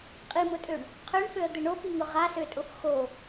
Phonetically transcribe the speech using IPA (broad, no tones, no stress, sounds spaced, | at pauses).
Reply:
qʼ i m ʊ tʼ ø ɳ | qʰ ø ɳ f ø ə̯ d̪ ɪ ɳ o p i ŋ ʊ ʁ a s ø tʼ ʊ f x o